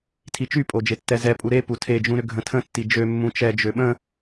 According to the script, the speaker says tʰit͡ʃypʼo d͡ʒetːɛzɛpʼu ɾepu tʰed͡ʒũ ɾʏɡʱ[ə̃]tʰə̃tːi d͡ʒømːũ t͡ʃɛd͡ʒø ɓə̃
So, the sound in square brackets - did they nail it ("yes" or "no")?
yes